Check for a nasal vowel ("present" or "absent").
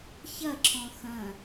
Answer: present